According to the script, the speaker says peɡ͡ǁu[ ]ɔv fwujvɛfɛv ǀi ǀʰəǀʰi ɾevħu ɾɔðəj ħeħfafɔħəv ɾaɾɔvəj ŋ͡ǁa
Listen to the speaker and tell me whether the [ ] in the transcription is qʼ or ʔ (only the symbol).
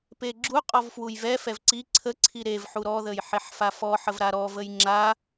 qʼ